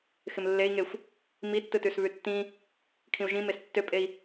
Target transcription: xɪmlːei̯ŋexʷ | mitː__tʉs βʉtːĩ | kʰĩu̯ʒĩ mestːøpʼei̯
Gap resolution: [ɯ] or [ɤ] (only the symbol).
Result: ɯ